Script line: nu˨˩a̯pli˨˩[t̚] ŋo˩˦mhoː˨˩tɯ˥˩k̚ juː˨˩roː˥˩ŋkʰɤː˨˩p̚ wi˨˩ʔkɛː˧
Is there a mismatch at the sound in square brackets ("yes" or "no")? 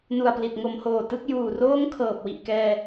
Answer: no